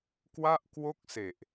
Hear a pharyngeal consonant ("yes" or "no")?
no